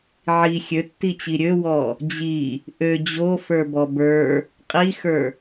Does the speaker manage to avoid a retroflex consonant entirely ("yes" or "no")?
yes